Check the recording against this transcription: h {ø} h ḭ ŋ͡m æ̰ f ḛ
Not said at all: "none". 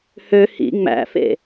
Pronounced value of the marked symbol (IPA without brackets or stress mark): ø